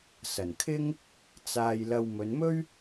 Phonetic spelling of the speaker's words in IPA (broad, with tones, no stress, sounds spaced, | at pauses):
s ɐ˨˩ n kʰ ɪ˥ ŋ | t͡s aː˨ j l ɐ˨ w m ɵ˨˧ n m ɵ˥ ɥ